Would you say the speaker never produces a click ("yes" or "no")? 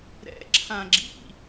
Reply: no